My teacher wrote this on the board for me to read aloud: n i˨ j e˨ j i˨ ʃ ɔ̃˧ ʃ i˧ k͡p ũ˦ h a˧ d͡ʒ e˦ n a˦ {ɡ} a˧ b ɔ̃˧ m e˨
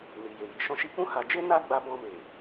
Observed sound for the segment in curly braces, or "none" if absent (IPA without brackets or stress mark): ɡ͡b